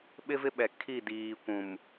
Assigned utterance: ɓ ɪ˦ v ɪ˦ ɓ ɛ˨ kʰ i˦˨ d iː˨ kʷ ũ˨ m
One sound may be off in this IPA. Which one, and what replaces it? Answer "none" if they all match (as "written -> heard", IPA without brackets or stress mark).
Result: none